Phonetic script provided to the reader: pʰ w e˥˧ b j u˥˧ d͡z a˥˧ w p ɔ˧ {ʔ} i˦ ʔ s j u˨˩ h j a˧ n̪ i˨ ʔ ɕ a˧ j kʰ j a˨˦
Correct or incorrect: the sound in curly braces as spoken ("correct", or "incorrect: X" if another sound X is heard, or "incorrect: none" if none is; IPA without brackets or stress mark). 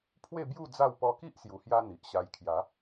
incorrect: k